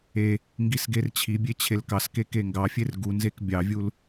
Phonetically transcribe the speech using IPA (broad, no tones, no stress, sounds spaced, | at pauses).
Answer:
e | ŋ ɡ i s ɡ e r t͡ɕʰ i bʲ e t͡ɕʰ e l k ɑ s k e k e ŋ ɡ ɑ fʲ e r ɡ u n z e k bʲ ɑ vʲ u l